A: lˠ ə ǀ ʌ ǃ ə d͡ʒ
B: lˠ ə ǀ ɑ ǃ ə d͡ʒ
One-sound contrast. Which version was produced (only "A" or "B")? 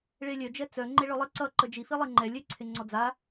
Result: A